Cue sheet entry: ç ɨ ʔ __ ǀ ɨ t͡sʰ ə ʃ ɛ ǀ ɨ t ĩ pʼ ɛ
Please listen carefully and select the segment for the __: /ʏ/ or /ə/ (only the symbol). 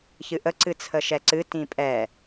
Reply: ə